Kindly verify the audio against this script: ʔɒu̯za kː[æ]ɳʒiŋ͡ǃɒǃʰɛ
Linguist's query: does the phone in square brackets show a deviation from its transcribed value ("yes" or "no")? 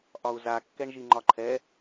yes